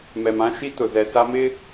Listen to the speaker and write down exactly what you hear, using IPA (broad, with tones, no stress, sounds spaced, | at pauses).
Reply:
m ɛ˨ m ã˦ ʃ i˦ t ʊ˨ z ɛ˨ s a˦ m ɪ˦